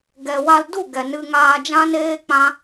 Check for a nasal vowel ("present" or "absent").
present